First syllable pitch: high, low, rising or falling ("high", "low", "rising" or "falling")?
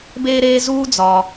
high